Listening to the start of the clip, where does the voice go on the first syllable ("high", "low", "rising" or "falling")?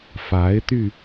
rising